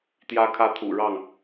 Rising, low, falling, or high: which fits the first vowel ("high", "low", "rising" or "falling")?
high